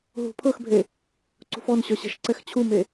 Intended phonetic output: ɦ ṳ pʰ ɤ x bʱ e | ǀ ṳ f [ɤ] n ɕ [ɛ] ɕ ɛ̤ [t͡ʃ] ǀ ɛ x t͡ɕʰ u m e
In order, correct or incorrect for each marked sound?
incorrect: ɔ, incorrect: œ, incorrect: ʃ

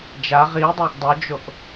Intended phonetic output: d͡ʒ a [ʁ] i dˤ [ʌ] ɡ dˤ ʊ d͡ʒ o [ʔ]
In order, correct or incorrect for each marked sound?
correct, incorrect: a, correct

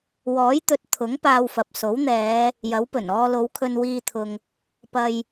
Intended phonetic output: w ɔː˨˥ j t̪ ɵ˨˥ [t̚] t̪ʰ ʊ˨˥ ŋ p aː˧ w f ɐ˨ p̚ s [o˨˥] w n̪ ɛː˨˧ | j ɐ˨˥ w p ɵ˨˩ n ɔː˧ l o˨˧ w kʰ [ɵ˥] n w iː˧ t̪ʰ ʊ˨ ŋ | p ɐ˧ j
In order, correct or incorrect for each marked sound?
correct, correct, incorrect: ɵ˧

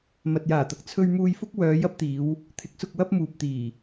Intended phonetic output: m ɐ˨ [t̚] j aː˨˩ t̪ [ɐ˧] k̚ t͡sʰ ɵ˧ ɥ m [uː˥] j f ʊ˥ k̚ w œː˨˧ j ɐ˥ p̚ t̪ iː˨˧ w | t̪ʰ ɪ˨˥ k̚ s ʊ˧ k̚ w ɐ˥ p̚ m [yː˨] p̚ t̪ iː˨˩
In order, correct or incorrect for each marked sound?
correct, incorrect: ɐ˨, incorrect: uː˧, incorrect: uː˨

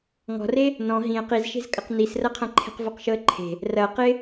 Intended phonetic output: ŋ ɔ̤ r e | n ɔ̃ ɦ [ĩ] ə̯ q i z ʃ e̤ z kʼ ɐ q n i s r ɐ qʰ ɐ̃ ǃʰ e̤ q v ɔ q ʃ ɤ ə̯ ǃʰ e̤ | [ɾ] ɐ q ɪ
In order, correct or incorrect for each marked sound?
correct, incorrect: r

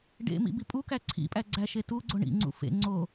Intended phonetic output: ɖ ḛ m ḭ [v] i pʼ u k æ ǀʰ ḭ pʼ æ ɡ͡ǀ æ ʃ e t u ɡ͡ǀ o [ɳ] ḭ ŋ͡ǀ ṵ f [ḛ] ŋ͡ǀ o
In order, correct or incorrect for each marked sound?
incorrect: b, correct, correct

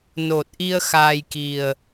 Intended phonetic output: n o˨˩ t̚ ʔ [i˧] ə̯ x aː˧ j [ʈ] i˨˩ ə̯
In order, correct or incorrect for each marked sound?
correct, incorrect: k

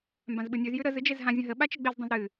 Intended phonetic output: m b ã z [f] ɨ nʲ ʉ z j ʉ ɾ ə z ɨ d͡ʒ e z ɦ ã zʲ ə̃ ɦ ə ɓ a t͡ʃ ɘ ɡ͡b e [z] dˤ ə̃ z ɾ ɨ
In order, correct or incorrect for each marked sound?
incorrect: ɓ, correct

